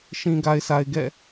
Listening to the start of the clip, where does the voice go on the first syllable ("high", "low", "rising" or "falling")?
low